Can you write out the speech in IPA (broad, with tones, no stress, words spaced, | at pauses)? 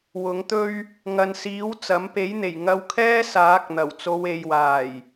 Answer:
wʊ˨˥ŋt̪ɵ˥ɥ | ŋɐ˨nsiː˨˥w t͡sɐ˨˥m pe˨˥jn̪e˨˩j ŋɐ˧wkʰɛː˥saː˨˥k̚n̪ɐ˨˩w t͡so˨˧we˨jwaː˨˩j